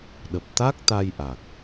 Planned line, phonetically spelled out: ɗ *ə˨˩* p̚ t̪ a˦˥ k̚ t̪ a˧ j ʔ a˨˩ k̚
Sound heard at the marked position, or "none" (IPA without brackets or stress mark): ə˨˩